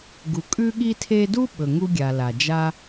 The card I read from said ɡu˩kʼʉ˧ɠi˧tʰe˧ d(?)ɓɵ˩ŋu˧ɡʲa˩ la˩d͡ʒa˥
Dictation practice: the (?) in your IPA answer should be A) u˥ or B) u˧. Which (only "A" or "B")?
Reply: A